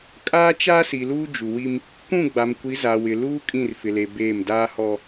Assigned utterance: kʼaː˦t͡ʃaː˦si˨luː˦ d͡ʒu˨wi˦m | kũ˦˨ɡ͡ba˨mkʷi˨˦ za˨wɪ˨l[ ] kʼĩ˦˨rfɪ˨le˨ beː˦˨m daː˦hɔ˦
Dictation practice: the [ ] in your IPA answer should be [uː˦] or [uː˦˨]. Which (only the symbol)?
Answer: uː˦